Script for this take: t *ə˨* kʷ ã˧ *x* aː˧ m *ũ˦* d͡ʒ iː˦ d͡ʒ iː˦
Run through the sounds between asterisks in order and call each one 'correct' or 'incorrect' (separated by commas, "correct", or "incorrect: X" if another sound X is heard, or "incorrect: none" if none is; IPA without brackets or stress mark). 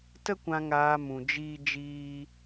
incorrect: ə˦, incorrect: ŋ, incorrect: ũ˧